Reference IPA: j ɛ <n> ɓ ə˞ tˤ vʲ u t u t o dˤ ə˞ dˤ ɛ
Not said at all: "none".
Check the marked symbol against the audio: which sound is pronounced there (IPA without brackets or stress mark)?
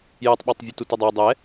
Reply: tˤ